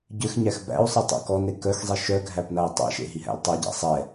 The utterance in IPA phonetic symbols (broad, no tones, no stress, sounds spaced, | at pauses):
ɟ ʏ x ɲ æ x b æ̰ u̯ sˤ ɨ tˤ æ̰ k ɔ n e k œ x zˤ i ʃ œ ɡʱ æ p n a i̯ tˤ ɛ̰ ʃ ḛ ɦ i ɦ æ̰ l tˤ e ɟ æ̰ sˤ ɛ